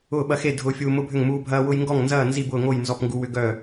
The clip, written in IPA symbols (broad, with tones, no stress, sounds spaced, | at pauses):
ʊː˥˨ ɓ ɐ˦ x e˥˨ dʱ ʊː˦ fʲ uː˦ m ʊ˦ bʱ ʏ˥˨ ŋ m uː˦ bʱ ɐː˦ w ʊ˦ j ŋ ɡ ɔ˥˨ ŋ n z ɐː˥˨ n z i˥˨ b ʊː˥˨ ŋ o˥˨ j n z ɔ˥˨ p ŋ ɡ u˦ w ʏ˦ ɡ œ˥˨